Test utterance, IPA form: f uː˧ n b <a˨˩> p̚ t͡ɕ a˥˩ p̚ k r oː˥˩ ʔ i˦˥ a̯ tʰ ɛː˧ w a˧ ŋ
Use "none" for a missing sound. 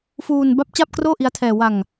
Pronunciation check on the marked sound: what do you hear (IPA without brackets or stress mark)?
a˦˥